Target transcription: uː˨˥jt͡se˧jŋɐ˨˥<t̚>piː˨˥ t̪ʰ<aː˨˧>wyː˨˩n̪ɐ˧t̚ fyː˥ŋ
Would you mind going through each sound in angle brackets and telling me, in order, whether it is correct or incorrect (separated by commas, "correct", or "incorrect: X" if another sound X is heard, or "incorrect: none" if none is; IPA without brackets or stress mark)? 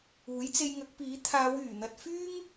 incorrect: k̚, correct